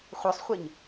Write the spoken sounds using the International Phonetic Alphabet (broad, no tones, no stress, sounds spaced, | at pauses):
χʷ œ sˤ χʷ e ɲ